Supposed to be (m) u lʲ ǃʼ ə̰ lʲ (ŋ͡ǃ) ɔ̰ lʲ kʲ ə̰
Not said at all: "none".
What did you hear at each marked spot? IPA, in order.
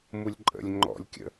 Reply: m, ŋ͡ǃ

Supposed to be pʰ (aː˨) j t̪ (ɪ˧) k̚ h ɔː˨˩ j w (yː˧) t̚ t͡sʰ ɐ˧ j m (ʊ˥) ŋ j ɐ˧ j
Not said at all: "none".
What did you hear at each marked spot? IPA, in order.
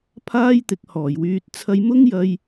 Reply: aː˥, ɪ˨˥, yː˧, ʊ˥

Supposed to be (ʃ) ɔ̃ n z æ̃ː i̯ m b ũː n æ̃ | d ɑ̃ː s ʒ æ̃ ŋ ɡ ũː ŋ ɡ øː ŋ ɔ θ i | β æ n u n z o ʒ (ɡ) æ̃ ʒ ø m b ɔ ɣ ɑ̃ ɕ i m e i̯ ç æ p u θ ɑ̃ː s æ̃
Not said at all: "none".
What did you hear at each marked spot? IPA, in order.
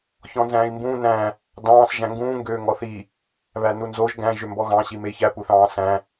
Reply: ç, ɡ

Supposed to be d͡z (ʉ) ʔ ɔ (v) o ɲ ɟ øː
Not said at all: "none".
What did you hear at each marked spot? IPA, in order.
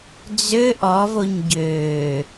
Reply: ø, v

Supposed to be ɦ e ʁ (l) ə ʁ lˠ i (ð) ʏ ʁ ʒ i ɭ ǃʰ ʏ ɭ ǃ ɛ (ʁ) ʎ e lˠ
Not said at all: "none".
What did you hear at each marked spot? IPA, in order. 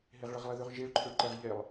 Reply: ɭ, ð, ʁ

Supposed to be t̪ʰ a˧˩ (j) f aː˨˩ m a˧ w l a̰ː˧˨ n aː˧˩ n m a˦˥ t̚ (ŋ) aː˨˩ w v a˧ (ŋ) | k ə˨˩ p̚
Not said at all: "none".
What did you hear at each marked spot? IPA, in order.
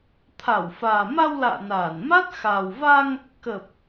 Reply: w, x, ŋ

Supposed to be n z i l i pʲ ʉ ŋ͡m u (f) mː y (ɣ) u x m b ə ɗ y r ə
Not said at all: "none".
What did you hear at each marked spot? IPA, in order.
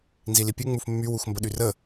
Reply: f, w

